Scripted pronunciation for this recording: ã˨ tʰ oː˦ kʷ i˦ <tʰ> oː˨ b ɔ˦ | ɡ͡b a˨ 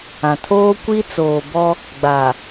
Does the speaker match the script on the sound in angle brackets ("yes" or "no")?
no